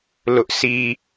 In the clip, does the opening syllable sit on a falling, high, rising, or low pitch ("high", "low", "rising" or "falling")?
high